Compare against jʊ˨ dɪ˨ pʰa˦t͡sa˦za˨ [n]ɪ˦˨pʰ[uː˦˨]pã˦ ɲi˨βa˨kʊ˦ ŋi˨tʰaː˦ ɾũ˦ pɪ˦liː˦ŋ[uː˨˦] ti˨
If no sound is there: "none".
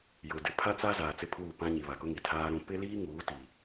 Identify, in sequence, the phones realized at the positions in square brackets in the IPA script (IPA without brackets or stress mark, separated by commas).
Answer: t͡s, uː˦˨, uː˨˦